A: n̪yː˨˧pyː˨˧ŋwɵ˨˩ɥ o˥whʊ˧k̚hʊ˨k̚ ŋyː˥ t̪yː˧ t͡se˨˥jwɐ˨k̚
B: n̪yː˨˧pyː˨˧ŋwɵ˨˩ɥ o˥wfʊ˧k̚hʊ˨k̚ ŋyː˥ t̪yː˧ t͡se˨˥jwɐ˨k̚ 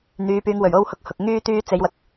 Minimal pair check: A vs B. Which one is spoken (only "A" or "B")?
A